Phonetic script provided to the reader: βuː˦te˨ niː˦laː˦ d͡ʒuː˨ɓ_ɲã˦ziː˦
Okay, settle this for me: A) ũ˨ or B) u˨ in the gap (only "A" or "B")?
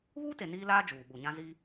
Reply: B